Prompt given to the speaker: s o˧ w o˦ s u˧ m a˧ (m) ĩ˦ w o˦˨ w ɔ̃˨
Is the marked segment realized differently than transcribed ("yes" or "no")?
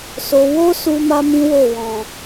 no